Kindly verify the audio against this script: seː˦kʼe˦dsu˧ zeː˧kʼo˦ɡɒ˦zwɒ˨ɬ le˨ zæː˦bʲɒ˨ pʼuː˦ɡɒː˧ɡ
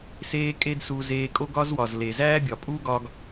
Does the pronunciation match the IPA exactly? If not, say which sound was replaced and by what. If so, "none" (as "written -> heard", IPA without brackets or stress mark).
ɬ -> z